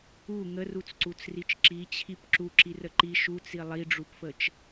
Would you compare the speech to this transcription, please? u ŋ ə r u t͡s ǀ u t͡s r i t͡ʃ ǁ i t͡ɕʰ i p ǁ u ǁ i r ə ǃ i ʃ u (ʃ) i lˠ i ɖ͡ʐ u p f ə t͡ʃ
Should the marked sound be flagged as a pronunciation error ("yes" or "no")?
yes